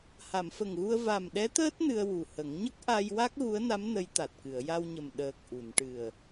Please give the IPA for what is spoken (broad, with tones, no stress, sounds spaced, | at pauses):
h a˨˩˨ m f ə˨˩ ŋ ɣ u˧ ə̯ v a˨˩ m ɗ ɛ˧˥ t̪ əː˦˥ t̚ n ɨ˧ ə̯ w u˨˩ h ə˨˩˦ ŋ ɲ ə˦˥ k̚ ʔ a˧ j w a˦˥ k̚ ɣ u˧˥ ə̯ n a˧˥ m n ə˧˥ j t̪ a˨˩ t̚ k ɨ˨˩˨ ə̯ j a˧ w ɲ ə˨˩ m ɗ əː˨˩ k̚ ʔ u˨˩˨ n ʈ ɨ˨˩ ə̯